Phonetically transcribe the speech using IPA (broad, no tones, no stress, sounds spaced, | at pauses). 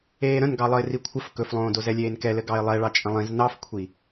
eː ɾ ə̃ n ɡ ɑ lˠ ə ɪ̯ r i kʷʰ ə f k ɵ f lˠ õː d o z ɛ lʲ eː n k ɛ l ɘ ɡ ɑ ɪ̯ lˠ ɛ ɭ ɑ t͡ʃʼ ə̃ lˠ ĩ z n ɑ f kʷʰ i